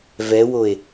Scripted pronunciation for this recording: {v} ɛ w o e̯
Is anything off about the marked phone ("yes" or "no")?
no